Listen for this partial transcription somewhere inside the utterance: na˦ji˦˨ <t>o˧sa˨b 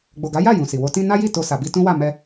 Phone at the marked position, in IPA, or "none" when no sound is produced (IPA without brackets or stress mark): t